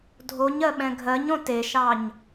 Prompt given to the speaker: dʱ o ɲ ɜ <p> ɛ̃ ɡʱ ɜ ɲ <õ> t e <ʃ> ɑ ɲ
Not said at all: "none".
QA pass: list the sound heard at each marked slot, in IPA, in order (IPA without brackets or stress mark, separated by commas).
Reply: ɓ, õ, ʃ